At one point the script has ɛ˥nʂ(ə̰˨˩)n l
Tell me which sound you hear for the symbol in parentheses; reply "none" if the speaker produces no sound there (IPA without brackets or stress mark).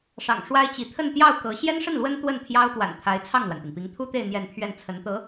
ə˥˩